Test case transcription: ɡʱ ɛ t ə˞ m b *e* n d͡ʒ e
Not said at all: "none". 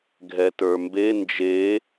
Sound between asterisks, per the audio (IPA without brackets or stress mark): e